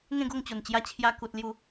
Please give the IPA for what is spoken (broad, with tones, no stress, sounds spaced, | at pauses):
ŋ ẽ˥˧ ɡ o˥˧ ŋ t͡ɕ o˨˩ n t͡ɕ j a˧ t͡ɕʰ j a˧ k u˨ t̚ l j u˥˧